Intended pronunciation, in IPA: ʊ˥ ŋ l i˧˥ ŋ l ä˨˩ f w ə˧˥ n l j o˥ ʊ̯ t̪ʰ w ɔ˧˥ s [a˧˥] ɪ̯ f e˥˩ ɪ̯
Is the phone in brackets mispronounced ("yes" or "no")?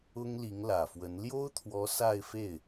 yes